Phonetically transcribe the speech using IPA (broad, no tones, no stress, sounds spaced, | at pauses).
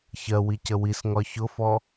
ç ɜ w i c ə w i s ŋ ɒ ç ʊ f ɔ